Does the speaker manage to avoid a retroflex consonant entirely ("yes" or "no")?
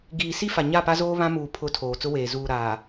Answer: yes